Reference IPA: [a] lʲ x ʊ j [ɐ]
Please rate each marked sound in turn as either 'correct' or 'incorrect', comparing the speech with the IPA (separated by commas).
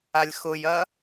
correct, correct